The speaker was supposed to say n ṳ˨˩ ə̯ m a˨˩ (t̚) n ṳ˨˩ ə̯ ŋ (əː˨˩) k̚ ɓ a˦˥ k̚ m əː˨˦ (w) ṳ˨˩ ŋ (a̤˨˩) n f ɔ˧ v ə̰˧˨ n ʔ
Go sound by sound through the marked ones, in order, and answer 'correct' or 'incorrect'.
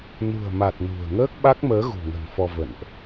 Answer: correct, incorrect, incorrect, incorrect

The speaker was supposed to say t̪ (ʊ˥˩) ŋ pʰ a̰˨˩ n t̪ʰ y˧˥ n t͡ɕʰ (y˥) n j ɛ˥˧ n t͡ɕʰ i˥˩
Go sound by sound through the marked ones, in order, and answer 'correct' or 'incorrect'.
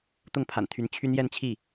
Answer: correct, correct

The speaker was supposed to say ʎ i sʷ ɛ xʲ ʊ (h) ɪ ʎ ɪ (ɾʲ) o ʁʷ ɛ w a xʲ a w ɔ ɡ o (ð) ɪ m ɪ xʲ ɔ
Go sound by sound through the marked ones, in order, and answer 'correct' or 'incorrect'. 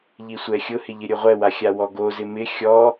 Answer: correct, correct, incorrect

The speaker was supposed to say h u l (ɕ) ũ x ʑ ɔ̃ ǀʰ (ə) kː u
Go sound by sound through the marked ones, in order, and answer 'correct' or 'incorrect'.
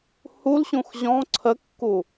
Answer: correct, correct

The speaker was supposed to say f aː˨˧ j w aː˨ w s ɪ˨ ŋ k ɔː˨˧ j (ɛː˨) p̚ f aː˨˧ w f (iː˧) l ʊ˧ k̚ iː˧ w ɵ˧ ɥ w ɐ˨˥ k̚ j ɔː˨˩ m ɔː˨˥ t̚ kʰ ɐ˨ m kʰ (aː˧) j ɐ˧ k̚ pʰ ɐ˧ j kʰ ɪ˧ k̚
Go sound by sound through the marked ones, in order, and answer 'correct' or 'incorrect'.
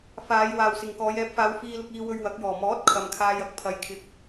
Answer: incorrect, correct, correct

